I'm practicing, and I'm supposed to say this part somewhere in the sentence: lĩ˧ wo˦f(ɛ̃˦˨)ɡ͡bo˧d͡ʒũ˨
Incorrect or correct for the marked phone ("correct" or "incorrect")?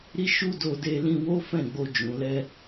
correct